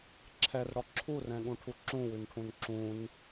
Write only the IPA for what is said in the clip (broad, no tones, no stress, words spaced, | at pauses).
ǁʰɛrɽɔ ǁʰurɛ̃ɠũʈʰu ǁũwʉnʈʰũn ǁũn